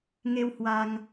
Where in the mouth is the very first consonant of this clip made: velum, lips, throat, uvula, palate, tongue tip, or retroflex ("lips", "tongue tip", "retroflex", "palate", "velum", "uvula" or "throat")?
velum